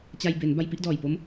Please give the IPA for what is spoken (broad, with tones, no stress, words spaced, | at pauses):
t͡ɕa˧jbe˩˦n ba˧jpi˥˩ʔdɔː˨˩jpo˦˥m